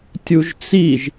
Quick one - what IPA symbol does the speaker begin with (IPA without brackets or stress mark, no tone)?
tʲ